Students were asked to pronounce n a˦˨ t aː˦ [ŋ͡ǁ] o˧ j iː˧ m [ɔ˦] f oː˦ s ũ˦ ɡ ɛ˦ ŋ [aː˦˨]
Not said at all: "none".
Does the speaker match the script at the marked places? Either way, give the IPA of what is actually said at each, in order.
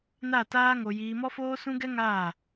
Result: ŋ, ɔ˦, aː˦˨

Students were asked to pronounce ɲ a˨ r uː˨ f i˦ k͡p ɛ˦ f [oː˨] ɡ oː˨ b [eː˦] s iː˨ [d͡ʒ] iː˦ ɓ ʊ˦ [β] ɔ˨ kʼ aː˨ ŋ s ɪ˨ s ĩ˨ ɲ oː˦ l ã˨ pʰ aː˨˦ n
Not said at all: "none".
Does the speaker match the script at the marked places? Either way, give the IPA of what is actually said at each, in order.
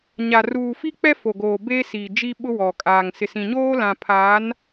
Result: o˨, eː˦, d͡ʒ, w

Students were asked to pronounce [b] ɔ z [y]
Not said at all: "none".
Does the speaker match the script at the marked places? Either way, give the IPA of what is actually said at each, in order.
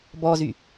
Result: b, y

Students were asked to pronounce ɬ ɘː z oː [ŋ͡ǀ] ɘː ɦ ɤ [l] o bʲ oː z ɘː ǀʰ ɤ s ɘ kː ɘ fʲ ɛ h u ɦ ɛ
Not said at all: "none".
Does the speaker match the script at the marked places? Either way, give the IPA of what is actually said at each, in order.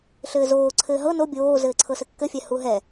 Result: ǀʰ, n

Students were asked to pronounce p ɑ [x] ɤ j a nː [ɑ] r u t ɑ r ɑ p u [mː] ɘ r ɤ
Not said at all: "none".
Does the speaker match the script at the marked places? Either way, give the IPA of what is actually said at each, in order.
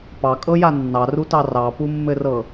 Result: kʼ, ɑ, mː

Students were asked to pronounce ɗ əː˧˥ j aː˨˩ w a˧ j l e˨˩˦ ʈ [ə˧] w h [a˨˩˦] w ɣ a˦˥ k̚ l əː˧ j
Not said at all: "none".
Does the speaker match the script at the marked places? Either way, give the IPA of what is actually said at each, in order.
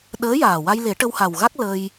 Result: ə˧, a˨˩

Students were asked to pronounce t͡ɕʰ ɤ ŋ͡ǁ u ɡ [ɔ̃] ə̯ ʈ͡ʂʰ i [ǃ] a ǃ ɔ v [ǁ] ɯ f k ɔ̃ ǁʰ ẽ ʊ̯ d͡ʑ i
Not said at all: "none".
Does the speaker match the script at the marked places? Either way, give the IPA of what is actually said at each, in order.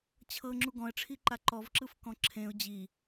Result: ɔ̃, ǃ, ǁ

